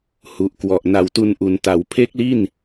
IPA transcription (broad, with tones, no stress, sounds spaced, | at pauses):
h u˨˩ ʔ k w ɔ˨˩ ʔ n a˨˩ w t u˧ n ʔ u˩˦ n t a˩˦ w pʰ e˦˥ k̚ l i˥˩ n